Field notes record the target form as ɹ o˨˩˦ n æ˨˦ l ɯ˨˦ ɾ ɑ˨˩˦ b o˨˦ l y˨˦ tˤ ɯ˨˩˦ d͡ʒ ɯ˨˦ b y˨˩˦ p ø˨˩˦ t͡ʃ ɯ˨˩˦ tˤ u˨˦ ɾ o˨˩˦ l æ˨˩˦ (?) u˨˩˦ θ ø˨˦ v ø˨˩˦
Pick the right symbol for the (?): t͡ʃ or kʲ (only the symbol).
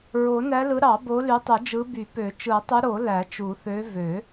t͡ʃ